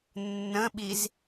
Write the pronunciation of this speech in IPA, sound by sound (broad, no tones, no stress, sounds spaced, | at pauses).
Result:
nː ə̃ ɓ i z